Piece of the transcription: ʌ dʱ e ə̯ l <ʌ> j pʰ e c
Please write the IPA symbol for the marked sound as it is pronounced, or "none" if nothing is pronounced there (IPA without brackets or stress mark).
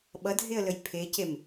ə